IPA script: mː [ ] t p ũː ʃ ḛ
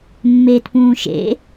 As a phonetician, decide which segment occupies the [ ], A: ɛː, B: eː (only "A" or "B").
B